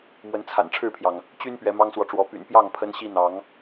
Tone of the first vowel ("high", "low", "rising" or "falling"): rising